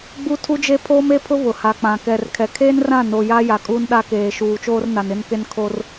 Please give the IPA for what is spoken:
ɡ͡b u˦ tʰ u˦ d͡ʒ e˦ pʰ oː˦ m e˦ pʰ ʊ˦ β ʊ˨ h a˨ k͡p ã˨ k ɛ˨ r kʰ ɛ˨ kʰ eː˦ n r ã˦˨ n o˨ j aː˦ j a˨ kʼ uː˦ n ɗ a˦ k eː˨ ʃ uː˨ t͡ʃ oː˦ r n a˨ n ɪ˦ n k e˦ n kʰ o˦ r

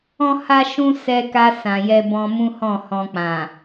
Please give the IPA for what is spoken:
ɔ̃˦ h a˦ ʃ ũ˦ s ɛ˧ k a˧ s ã˨ j ɛ˧ b ɔ̃˧ m ũ˦ h ɔ̃˦˨ h ɔ̃˧ k͡p ã˨

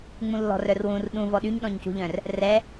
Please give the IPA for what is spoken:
ŋ͡m ũ lː ɔ̤ r œ r w ũ r ɗ ũ v ɔ ɗ y ɲ ɗ ɔ̃ ɲ c ṳ ʎ œ̃ r | r ɛ

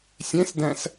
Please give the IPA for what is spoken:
sʲ ẽ s d æ̃ s

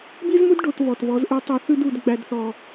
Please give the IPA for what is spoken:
b i˦ z m u˦ d ɖ o˧ t β ɔ˨ t β ɔ˨˦ z ʔ ʉ˧ tˤ u˨ θ ʉ˧ d u˨ d ɡ͡b æ˨ d θ ɔ˨

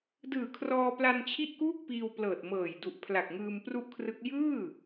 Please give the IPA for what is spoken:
d ɯː˨˩ kʰ r ɔː˧ p l a˧ n t͡ɕʰ i˥˩ ʔ k uː˥˩ k̚ p iː˧ w p l ɤː˨˩ t̚ m ɤː˨˩ j d u˨˩ ʔ pʰ l a˨˩ k̚ ŋ ɯː˧ m p r u˥˩ ʔ kʰ r ɯ˦˥ k̚ j ɯː˥˩

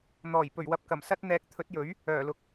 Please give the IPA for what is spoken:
n̪ ɔː˨˩ j p ɵ˨˩ ɥ w ɐ˨ p̚ k ɐ˨˩ m s ɐ˥ t̚ n̪ ɛː˨˥ k̚ t̪ʰ ɵ˨˥ t̚ j ɵ˨˥ ɥ | œː˨˩ l ʊ˨ k̚

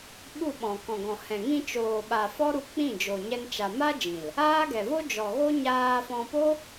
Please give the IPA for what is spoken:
ɓ u˦˨ ɓ ɔ̃˨ k ɔ̃˨ ɡ ɔ̃˨ h ɛ̃˨ ŋ ĩ˧ t͡ʃ oː˨ ɓ a˨ f ɔ˦ ɾ u˧ k͡p ĩ˦˨ d͡ʒ o˨ ɲ ɛ˦ n t͡ʃ a˧ m a˦ d͡ʒ ĩ˨ l | aː˦ ɡ ɛ˨ v o˦ d͡ʒ ɔ˨ ɣ o˦ ɲ aː˧ f ɔ̃˧ p o˦

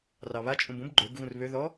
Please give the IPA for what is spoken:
r ɑ β a t͡ʃʼ ũ b ũ b ɡ͡ǃ ø b ɣ ũ r β ø ð ɔ

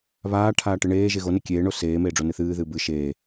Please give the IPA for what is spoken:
β aː ʈʰ aː ʈ ɨ ɳ eː ʒ e ɣ o n e kʲ eː ɳ o s eː m eː ɖ͡ʐ o n ɨ θ ɨː ð ɨː b ɨ ʃ eː

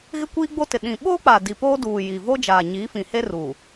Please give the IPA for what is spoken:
ɣ ɪ˦ kʷ iː˦ ɡ͡b o˦ t ɪ˨ ɗ ĩ˨ ɓ o˦ k͡p a˨ d i˨ p oː˦ d uː˨ j i˨ v o˦ d͡ʒ aː˨ ɲ i˨˦ f ĩ˨ h e˦ r uː˨

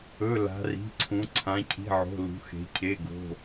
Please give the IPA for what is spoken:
ɵ˩˧˩ l a̤˩˧ r i̤˩˧˩ ǀʰ ũ˩˧ ǀʰ ã˩˧ cʰ i̤˩˧˩ ʕ o̤˩˧˩ l ṳ˩˧ x e̤˩˧ cʰ e˩˧˩ ɡ o̤˩˧˩

